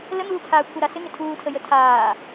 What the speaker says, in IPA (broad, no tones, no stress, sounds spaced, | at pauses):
l ə n̪ uː t͡sʰ aː kʷʰ ə ɾ a s ɪ ŋ ɪ tʰ uː tʰ ə j ə tʰ aː